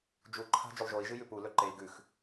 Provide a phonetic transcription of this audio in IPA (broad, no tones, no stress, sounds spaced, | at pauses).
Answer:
d͡ʒ u ǃʰ a̤ d͡ʒ ɵ lˠ ʒ o i̯ ʒ ɨ j ʉ p u l ɵ ǃ e i̯ ɡ ʉ x